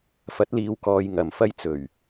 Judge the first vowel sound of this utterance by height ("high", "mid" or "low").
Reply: low